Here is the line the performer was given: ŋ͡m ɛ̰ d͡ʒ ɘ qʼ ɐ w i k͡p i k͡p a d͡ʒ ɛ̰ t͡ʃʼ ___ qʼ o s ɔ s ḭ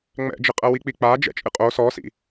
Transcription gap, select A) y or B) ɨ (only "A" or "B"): B